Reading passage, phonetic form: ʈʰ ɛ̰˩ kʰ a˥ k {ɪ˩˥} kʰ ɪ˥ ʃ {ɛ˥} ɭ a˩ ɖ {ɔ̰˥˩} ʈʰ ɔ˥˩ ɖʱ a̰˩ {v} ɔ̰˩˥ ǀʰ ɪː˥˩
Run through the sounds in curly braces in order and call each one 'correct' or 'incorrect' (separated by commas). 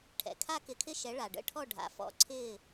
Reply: correct, incorrect, incorrect, incorrect